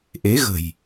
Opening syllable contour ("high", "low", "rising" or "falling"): rising